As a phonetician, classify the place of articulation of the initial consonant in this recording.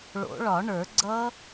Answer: retroflex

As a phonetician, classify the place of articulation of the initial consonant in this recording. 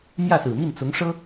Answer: labial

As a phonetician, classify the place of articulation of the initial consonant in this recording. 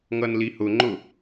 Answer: velar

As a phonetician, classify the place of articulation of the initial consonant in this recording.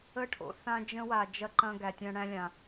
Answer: retroflex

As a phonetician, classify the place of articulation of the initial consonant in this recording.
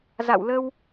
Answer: alveolar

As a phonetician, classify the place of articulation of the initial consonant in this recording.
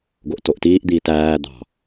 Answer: velar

